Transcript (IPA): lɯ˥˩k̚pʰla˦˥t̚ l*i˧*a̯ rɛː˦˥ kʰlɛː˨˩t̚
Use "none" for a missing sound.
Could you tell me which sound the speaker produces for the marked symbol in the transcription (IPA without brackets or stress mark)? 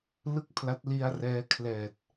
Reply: i˧